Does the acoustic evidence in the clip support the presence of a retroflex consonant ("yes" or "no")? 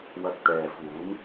no